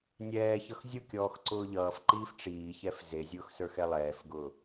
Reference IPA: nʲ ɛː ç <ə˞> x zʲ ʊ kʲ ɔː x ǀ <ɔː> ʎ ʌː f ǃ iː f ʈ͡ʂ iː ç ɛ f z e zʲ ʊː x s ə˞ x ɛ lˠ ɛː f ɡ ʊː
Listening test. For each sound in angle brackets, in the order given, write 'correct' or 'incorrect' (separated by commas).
incorrect, incorrect